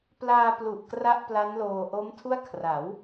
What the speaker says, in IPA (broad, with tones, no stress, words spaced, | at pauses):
plaː˧plu˨˩ʔ kra˥˩ʔpla˦˥nloː˧ ʔo˦˥mtʰu˥˩a̯ kʰra˩˦w